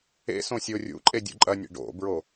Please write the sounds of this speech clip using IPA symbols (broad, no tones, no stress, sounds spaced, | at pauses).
ḛ s õ sʲ o rʲ ṵ ǃʼ e dʲ ṵ ǃʼ ɐ nʲ ḛ ɖ o̰ b ɹ o